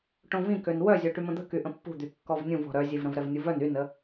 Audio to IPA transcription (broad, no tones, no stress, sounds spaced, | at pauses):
ʈ õ v ĩ k ø n w œ zʲ o ʈ y m ə̃ d̪ ə̤ k y ʔ ə̃ pː ṳ d̪ y kː ɔ v nʲ ũ v ɔ̤ ɾ œ zʲ e v ɾ ə̃ v ɾ ɛ v nʲ u v œ n y n ə